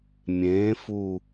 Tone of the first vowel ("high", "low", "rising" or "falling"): rising